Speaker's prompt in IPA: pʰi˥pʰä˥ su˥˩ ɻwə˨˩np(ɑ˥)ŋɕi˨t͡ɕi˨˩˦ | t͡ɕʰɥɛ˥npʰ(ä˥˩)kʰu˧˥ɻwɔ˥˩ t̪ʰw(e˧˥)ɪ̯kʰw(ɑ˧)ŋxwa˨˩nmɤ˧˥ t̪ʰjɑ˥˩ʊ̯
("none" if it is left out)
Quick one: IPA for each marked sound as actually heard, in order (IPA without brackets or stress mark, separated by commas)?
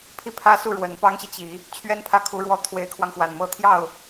ɑ˥, ä˥˩, e˧˥, ɑ˧